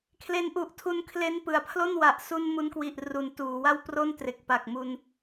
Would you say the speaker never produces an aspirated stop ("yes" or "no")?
no